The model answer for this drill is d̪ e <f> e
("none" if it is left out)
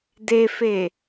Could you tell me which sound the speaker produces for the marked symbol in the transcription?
f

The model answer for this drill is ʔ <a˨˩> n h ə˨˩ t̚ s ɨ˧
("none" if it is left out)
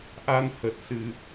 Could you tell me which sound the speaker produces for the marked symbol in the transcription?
a˧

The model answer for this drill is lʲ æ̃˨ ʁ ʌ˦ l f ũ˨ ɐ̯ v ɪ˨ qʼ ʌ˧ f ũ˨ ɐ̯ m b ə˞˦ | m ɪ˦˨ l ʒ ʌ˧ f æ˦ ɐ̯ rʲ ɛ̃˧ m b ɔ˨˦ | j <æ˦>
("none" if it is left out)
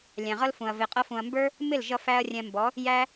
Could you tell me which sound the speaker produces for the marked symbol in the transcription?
æ˦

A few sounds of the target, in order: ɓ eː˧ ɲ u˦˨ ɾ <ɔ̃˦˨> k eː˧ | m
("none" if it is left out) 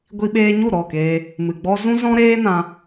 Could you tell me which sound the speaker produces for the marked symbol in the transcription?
ɔ˦˨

